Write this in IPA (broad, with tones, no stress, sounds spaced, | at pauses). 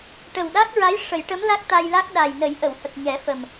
ʈ ə˨˩ w ɗ a˦˥ k̚ ɹ a˧˥ j ʂ ə˨˩˦ j ʈ ə˧˥ m l a˦˥ k̚ t̪ a˧ j l a˦˥ k̚ ɗ a˨˩ j n ə˨˩˦ j ʔ ə˨˩˨ w h ə˨˩ k̚ ɲ ɛ˨˩˦ f ə˨˩ m